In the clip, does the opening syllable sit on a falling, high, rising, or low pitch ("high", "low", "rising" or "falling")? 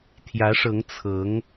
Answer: rising